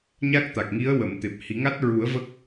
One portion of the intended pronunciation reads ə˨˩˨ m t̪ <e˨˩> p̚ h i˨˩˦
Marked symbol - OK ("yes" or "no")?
yes